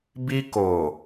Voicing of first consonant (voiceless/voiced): voiced